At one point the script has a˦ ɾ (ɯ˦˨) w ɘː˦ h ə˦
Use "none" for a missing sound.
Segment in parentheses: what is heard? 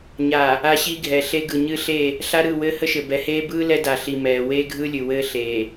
ɯ˦˨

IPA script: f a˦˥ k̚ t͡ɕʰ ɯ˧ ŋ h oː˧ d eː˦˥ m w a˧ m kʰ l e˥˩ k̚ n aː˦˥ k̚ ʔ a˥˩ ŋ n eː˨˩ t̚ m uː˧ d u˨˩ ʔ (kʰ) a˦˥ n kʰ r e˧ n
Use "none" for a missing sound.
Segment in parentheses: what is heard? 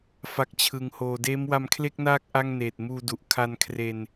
kʰ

